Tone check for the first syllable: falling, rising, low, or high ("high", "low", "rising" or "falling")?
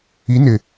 rising